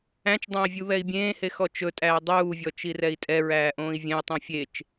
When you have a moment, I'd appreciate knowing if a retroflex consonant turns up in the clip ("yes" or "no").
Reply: no